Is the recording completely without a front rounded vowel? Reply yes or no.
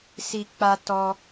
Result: yes